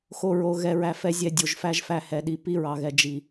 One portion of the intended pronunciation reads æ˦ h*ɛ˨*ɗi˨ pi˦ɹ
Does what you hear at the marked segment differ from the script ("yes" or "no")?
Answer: no